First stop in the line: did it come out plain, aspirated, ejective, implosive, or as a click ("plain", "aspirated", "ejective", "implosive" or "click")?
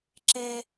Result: click